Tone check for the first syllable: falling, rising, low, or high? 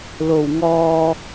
low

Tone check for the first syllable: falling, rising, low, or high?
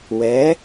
rising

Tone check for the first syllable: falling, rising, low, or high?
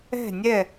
falling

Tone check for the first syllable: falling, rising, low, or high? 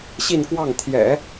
falling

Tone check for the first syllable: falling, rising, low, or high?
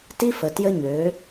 high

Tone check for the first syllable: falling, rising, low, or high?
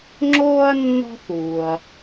high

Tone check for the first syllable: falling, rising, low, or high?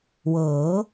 rising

